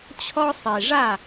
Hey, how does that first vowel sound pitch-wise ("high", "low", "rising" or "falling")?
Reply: high